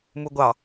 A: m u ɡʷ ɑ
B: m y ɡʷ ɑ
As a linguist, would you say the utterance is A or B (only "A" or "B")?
A